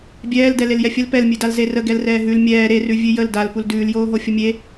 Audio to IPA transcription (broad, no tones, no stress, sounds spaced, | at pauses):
bʲ ɛː l d ɛ l e l j ɛ fʲ ə l p ɛ l mʲ ʉ d a l z e r ə ɡ ɛ l r ɛː ɦ ʉ l mʲ ɛː ɾ e r ʉ vʲ ʉ j ə l d a l p u l d ʉː l j oː ɦ o fʲ ə mʲ e